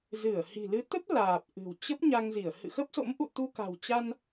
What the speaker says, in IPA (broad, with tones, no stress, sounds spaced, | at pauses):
z ɨ˧˩ ə̯ h i̤˨˩ l ɨ˨˦ t̪ ə˦˥ p̚ l aː˨˩ p̚ ʔ ɨ̤˨˩ w t͡ɕ ə˦˥ p̚ ɲ a˧ ŋ z i˧˩ ə̯ h ɨ̰˧˨ x ə˦˥ p̚ s o̰˧˥ m ʔ ṵ˧˨ t̪ u˧ k a̤˨˩ w t͡ɕ a˧ n